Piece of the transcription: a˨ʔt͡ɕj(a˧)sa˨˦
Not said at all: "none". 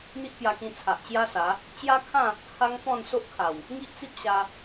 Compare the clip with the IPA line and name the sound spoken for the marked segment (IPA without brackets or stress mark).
a˦